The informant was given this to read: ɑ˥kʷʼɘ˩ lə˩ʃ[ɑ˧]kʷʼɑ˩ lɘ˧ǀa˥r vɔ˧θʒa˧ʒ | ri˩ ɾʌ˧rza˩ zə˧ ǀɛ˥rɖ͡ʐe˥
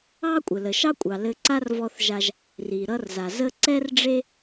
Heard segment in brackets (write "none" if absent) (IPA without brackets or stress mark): ɑ˥